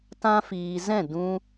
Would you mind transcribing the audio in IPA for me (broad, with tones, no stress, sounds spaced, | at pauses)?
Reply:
t ã˧ f iː˨ z ɛ̃˦˨ d ũ˧